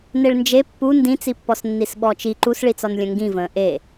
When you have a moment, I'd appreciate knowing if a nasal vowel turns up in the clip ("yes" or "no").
yes